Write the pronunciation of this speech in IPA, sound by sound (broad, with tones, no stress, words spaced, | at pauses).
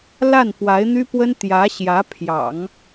la˥˩npwa˧˥ɪ̯n̪y˥pwə˥n t̪jä˧˥ ɕjä˧˥ pʰjɑ̰˨˩˦ŋ